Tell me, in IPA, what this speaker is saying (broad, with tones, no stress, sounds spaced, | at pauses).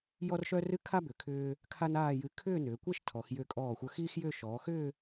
j ɔ˥ r ʃ œ˥ r ɨ˥ kʰ a˥ b ʏ˩˧ kʰ ʏː˧ | kʰ a˥ n aː˥˧ j ɨ˧ kʰ ʏː˥˧ n ʏː˩˧ kʷ ɛ˥˧ ʃ tʰ ɔ˩˧ x j ʏː˧˩ kʼ ɔː˧˩ xʷ œ˧ x iː˥ x j ʏː˥˧ ʃ ɔː˩˧ x ʏː˥˧